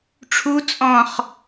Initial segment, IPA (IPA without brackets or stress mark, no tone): ʈ͡ʂʰ